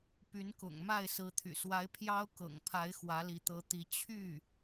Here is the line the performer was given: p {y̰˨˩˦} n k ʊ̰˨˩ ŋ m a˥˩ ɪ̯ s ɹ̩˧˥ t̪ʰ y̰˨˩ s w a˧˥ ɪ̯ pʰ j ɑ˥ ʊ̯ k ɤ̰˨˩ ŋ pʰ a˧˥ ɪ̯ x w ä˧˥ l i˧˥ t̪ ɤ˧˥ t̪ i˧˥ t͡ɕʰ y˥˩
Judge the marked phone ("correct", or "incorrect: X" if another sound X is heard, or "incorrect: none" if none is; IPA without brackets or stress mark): incorrect: y˧˥